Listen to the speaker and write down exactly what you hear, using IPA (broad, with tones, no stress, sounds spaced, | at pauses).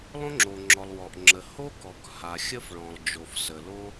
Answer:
lˠ õ˥ ŋ͡ǁ o˩ ŋ͡ǁ ɔ˩ lˠ w ɔ˩ ʔ ŋ͡ǁ ə˩ h o˥ k ɔ˩ k h a˩ xʲ ə˥ f ɭ ɔ̃˩ lˠ d͡ʒ o˩ f s ə˩ l o˥